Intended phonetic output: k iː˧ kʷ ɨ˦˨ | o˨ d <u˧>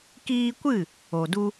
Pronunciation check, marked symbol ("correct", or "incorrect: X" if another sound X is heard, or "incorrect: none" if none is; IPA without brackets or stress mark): correct